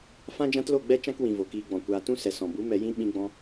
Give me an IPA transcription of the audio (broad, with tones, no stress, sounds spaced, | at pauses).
f ã˦ d͡ʒ ã˦ t l o˦˨ ɡ͡b ɛ˦ t͡ʃ ã˦ k w ĩ˨ v o˨ k iː˧ ɡ͡b ɔ̃˨ kʷ aː˧ t ũ˦ s ɛ˨ s ɔ̃˨ b u˨˦ m ɛ˧ j ĩ˦ ɓ ĩ˦ ɡ͡b ɔ̃˦